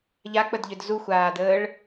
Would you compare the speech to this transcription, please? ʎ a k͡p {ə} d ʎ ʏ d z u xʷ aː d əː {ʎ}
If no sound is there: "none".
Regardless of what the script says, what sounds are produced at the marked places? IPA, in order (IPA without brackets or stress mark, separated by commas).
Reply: ə, ɭ